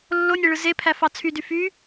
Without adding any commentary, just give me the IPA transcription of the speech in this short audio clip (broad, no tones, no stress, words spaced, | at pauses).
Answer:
lːonʲeɭɯ zepʰæfɑ t͡sʰydy fy